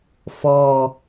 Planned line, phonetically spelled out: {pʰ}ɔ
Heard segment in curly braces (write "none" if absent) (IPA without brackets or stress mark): f